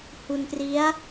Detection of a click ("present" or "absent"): absent